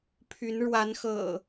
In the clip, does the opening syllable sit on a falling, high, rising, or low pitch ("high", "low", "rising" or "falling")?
rising